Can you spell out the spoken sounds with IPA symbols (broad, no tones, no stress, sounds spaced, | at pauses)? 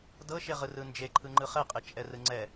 d ɤ ʃ e ʁ ɯ r ɯ n d͡ʒ e ǃʰ ɯ ŋ͡ǃ ɯ χ ɛ qʼ e t͡ʃʼ ɛ r ɯ ŋ͡ǀ ɛ